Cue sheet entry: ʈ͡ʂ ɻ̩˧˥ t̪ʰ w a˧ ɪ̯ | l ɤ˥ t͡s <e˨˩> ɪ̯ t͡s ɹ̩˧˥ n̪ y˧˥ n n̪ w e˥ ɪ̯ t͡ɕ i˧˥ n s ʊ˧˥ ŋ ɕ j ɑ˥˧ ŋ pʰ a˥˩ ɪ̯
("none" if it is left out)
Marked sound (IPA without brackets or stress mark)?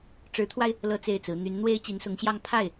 e˥˩